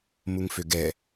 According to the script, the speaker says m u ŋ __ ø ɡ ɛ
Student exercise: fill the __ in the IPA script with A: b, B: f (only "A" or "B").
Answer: B